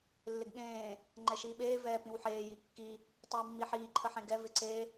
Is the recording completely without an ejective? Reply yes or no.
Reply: yes